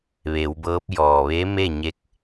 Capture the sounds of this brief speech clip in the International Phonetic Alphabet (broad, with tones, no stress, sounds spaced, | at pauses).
ʋ e˩˧ w b ɤː˧˥ p̚ j ɔː˩ ʋ e˧˥ m e˥˨ ɲ e˧˥ k̚